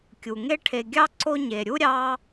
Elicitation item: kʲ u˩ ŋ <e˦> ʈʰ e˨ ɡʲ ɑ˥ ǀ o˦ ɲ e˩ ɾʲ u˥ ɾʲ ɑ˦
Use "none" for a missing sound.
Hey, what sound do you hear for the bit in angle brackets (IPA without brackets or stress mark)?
e˦